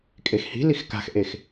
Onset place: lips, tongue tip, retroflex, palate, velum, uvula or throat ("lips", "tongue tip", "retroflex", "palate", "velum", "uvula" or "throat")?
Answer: velum